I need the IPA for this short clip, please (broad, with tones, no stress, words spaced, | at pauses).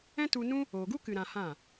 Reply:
ɛ̃˦tu˧nũ˦ | oː˨ɡu˦kɨ˨ ɾã˧hã˦˨